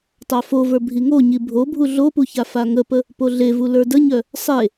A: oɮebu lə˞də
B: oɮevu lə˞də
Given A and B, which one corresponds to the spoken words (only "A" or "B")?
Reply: B